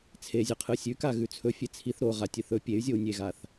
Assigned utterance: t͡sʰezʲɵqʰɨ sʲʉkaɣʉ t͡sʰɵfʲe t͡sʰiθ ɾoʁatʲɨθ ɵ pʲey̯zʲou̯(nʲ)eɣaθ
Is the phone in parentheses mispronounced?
no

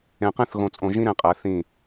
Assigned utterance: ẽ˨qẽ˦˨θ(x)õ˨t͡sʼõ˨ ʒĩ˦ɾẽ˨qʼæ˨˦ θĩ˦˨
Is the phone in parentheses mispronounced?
yes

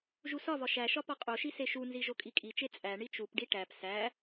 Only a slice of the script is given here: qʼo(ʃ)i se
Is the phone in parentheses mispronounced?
no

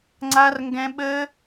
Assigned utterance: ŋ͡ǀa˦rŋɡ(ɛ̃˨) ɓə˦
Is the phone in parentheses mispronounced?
yes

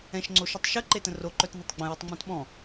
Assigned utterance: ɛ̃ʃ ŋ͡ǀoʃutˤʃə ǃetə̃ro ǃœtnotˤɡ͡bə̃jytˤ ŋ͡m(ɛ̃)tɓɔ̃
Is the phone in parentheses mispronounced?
no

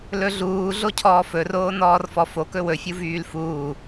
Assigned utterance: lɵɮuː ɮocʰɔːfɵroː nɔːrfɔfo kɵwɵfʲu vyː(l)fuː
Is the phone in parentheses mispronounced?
no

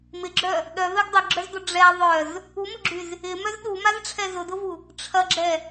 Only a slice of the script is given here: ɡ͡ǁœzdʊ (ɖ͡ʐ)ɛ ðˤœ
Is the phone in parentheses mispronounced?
no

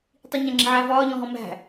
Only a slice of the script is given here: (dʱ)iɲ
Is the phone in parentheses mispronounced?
yes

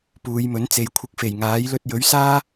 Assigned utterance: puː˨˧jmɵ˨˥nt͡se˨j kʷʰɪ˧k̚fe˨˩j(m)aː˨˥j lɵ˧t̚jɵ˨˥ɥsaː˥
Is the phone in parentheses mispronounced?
yes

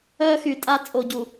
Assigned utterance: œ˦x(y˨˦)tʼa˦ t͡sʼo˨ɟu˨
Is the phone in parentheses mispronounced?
yes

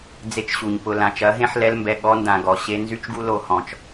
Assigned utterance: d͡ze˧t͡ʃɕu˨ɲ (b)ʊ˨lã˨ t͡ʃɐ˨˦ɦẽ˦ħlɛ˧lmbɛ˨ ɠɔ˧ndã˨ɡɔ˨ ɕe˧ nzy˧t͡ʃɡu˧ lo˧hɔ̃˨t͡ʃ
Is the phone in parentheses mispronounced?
yes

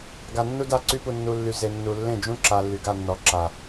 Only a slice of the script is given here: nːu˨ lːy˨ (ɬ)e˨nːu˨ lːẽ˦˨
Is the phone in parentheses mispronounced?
yes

